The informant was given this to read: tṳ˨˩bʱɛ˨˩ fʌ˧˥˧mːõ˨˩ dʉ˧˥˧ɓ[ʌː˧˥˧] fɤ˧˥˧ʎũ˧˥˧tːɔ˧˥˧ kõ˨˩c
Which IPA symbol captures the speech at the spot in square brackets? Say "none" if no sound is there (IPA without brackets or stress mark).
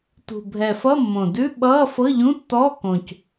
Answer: ʌː˧˥˧